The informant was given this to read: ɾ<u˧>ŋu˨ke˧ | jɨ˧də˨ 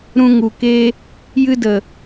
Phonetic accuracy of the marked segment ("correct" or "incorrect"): incorrect